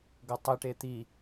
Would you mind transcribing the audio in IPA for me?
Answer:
ɡɤtˤiʈe t̪i

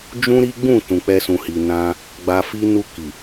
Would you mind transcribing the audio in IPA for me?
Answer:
d͡ʒũ˦ɾi˦ɡ͡bũ˦˨ tũ˨k͡pɛ˧sũ˨hi˨ nã˧ | ɡ͡ba˧fi˦ nu˧ki˨

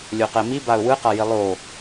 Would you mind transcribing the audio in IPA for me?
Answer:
lʲoqɛmibaʊ̯ wɯqaji lˠo

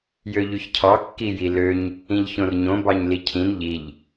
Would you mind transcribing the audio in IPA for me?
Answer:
jøʎyçcʰɑ kːijiløɲ | ĩʎçõrɲõ bɑɲlicʰĩn ʎiʎ

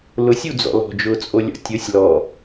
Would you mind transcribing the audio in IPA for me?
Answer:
lʊsʲud͡zɔ̰ lɔ̤d͡ʒʊːt͡sʼolʲɔ̰ tʲʊsʲ lɔ

